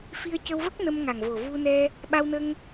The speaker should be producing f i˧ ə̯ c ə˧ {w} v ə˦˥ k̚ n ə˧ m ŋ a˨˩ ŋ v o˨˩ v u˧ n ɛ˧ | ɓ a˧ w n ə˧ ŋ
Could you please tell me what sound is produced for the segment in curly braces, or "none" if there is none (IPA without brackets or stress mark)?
w